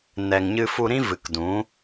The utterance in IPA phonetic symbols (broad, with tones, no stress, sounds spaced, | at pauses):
n ɛ˨ ŋ ɲ ɨ˧ f u˧ ɾ ĩ˦ v ɨ˨ k d ũ˨˦